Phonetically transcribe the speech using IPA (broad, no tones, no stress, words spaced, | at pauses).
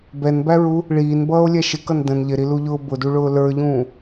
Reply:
bɛnbæɹu | ɭiːnbʌːo̯lʲɛ ʃɪkʌn də̃n ʎɪɾiluʎʊː bʊduɭʊː lə˞ʎũː